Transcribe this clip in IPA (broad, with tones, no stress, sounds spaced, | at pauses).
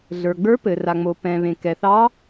ɮ ə˞˩ ɡ͡b ə˞˧˥ p ɘ˩ r a˩ ŋ͡m o˩ p ɛ̃˩ β ẽ˩ k ɛ˩ θ ɑ˧˥